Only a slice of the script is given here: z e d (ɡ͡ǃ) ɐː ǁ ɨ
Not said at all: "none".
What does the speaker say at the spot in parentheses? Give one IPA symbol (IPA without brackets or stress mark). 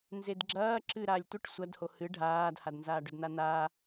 ɡ͡ǁ